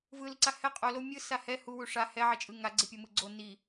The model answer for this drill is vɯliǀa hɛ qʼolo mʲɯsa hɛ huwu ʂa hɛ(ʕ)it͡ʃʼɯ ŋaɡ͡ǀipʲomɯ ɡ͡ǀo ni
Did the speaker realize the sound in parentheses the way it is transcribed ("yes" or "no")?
yes